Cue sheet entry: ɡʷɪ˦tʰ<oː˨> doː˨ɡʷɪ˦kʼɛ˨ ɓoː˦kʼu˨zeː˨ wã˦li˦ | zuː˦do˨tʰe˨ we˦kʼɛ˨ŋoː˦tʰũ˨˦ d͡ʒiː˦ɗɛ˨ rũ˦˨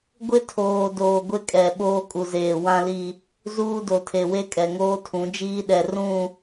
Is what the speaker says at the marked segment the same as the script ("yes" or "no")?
yes